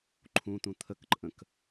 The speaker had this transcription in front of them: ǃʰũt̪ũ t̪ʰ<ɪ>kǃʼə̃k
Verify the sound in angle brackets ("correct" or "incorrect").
incorrect